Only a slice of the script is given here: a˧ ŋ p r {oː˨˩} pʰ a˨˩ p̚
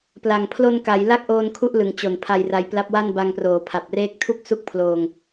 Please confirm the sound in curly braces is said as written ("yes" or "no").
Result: yes